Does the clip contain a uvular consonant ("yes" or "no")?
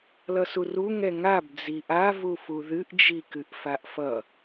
no